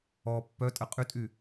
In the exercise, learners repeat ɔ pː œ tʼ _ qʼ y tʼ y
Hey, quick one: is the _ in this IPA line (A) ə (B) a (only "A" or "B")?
A